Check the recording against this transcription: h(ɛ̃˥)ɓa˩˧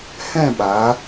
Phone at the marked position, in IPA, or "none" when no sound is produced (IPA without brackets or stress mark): ɛ̃˥˧